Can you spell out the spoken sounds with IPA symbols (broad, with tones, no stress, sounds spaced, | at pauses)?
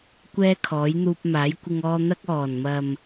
kʷ ɛː˥ kʰ ɔː˨˥ j n̪ uː˧ p̚ m aː˨˥ j kʷ ɪ˧ ŋ ɔː˧ n̪ ɐ˧ k̚ ɔː˨˩ n m ɐ˨ m